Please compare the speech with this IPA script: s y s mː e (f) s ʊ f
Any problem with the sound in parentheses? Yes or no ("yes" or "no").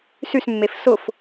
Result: no